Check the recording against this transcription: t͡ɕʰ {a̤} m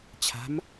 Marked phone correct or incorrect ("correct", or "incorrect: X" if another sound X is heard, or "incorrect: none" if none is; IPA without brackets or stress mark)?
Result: correct